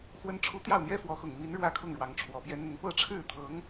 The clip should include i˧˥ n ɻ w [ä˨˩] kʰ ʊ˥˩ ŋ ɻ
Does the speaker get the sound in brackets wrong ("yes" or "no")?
yes